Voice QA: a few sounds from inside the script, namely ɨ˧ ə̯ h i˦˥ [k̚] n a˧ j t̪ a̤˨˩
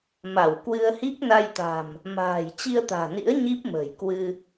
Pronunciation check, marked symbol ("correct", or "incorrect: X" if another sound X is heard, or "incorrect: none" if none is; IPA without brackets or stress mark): correct